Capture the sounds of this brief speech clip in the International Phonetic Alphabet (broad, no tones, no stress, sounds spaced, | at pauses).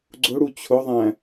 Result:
ɡ͡ǀ ʊ ɽ u t͡ɕʰ ʊ ðˤ æ̃